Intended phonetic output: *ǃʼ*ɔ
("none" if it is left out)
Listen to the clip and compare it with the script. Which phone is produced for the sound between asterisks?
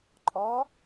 ǃʼ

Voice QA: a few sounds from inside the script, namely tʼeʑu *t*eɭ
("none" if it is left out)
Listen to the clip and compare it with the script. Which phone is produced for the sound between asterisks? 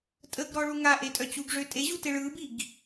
t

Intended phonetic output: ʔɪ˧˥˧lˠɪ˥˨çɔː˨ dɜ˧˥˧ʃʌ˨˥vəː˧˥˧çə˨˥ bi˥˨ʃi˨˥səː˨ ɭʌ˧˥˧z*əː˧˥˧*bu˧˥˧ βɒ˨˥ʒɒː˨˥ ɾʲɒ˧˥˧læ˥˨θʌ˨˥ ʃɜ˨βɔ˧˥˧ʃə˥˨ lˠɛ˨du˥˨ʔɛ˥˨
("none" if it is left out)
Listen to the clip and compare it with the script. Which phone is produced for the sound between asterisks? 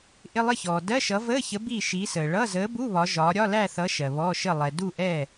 əː˨˥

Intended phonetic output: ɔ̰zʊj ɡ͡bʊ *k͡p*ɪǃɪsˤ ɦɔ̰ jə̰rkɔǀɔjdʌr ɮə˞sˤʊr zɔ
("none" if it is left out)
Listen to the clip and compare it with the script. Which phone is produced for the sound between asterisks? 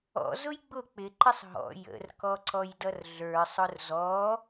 k͡p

